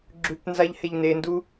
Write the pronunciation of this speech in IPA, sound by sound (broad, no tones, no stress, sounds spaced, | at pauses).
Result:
ɡ͡ǁ ʉ p n z a ʎ h e ʎ n e n d u